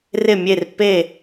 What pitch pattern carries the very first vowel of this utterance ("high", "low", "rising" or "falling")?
falling